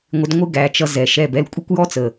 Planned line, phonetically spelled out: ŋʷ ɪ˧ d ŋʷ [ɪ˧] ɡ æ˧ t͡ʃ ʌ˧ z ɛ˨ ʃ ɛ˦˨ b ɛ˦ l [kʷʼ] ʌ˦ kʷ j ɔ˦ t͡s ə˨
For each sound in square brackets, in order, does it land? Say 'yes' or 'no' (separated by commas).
no, yes